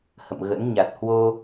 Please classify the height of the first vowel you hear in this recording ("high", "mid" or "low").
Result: mid